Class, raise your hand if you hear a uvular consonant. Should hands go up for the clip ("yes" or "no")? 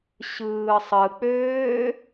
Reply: no